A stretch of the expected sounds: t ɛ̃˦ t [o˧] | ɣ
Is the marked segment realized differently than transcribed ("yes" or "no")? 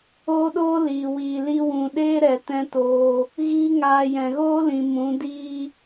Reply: yes